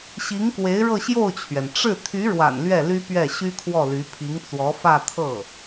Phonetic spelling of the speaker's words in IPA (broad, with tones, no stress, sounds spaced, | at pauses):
ɕ i˧˥ ŋ k w e˧˥ ɪ̯ ɻ ɤ˥˧ ɕ j o˥˩ ʊ̯ t͡ɕʰ ɥ ɛ˩ n ʈ͡ʂ ɻ̩˥˩ t̪ʰ y˧˥ ɻ w a̰˨˩ n l ɥ ɛ˥˩ l y˥ p ɥ ɛ˥˩ ɕ y˥ kʰ w ɔ˥˩ l y˧˥ pʰ i˧˥ ŋ t͡s w ɔ˧˥ f ä˥˧ t̪ʰ ɤ˥˩